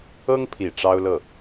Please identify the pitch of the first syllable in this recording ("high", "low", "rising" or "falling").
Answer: high